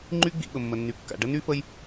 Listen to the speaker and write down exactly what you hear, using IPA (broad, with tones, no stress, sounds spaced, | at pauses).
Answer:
ŋ͡ǃ y˦ ɡ͡b ḭ˨ ɓ ə˩ mː ə˩ nː y˩ kː a̰˩ ɖ ə˥ n y˥ f ə˦ j